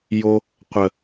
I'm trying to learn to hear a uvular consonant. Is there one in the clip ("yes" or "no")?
yes